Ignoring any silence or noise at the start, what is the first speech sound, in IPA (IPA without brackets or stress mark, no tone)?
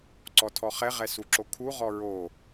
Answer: ǀ